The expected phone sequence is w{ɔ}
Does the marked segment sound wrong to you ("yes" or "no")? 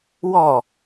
no